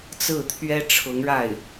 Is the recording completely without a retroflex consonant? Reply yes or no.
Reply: no